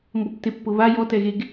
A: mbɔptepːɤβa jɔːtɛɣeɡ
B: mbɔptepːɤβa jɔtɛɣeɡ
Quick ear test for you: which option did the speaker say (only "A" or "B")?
B